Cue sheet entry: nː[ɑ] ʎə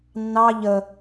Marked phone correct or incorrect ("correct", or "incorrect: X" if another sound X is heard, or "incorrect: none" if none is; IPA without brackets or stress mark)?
correct